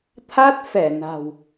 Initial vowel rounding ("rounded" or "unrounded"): unrounded